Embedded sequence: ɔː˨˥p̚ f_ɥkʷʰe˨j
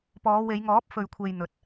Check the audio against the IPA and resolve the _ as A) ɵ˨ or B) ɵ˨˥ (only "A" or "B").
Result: A